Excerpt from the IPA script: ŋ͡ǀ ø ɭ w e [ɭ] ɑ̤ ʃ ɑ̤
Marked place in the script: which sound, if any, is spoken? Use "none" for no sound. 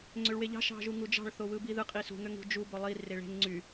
ʎ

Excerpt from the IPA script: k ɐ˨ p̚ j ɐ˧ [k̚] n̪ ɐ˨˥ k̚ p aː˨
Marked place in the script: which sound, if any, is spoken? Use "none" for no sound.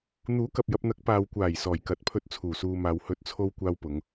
p̚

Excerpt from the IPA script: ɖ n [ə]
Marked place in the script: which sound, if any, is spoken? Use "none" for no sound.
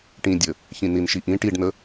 ə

